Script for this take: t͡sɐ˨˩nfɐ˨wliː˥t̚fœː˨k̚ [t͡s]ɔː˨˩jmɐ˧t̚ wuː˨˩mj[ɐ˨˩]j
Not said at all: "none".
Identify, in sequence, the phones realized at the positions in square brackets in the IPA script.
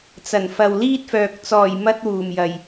t͡s, ɐ˨˩

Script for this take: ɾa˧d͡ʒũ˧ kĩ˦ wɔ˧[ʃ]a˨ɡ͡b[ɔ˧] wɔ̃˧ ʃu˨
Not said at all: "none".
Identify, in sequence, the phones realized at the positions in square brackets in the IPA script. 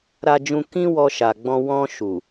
ʃ, ɔ̃˧

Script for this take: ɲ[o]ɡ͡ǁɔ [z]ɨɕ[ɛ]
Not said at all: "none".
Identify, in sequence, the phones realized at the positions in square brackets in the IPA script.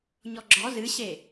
ɔ, z, e

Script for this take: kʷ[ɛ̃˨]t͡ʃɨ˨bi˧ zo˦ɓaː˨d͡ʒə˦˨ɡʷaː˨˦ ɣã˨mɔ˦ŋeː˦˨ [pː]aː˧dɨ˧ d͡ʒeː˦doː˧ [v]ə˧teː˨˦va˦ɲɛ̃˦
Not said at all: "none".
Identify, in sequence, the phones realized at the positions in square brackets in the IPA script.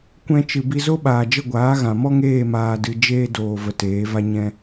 ɛ̃˧, m, v

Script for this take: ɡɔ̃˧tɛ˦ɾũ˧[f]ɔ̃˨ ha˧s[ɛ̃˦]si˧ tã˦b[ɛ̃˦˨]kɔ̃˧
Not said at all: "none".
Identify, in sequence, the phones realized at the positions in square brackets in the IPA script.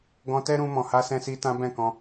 m, ɛ̃˧, ɛ̃˦˨

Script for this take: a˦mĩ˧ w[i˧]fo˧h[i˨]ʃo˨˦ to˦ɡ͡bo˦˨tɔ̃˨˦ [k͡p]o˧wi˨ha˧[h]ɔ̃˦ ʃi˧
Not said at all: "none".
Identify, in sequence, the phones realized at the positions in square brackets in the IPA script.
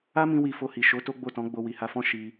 i˧, i˨, ɡ͡b, f

